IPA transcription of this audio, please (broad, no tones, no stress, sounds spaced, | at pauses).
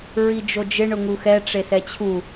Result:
ɹ i d͡ʒ o d͡ʒ ɪ ɳ ʊ ŋ u x ɛ ʈ͡ʂ e s ɛ t͡ɕʰ u